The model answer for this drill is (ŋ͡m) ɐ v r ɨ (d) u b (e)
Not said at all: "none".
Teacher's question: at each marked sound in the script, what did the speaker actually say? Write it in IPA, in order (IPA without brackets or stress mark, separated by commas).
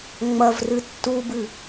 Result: ŋ͡m, tː, ɨ